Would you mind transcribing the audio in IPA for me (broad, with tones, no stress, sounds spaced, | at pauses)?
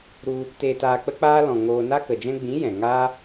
ɾ u˧ | t eː˧ t aː˧ k͡p ə˦ k͡p aː˦ l ɔ̃˨ ŋ oː˧ n a˦ k ə˨ d͡ʒ ɛ̃˦ ɡ͡b ĩ˨˦ j ɛ̃˨ ŋ aː˦